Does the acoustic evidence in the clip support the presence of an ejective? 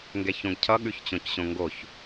no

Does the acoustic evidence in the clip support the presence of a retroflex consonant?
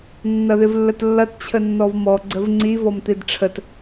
yes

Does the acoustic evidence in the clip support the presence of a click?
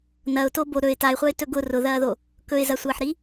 no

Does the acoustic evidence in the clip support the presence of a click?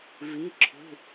yes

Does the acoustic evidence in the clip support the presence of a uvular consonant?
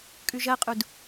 yes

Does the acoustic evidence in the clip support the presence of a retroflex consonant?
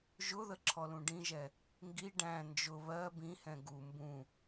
yes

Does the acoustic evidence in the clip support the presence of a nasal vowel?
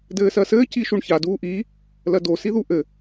no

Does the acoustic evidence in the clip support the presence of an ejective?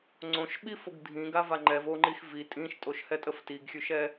yes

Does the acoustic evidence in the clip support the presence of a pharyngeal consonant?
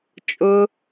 no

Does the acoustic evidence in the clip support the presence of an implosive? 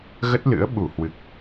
yes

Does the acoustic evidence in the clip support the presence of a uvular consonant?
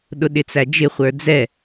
yes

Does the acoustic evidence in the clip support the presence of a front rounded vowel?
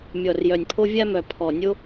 yes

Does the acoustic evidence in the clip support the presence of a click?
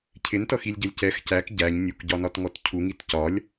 no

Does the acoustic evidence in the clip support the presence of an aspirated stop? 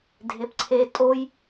yes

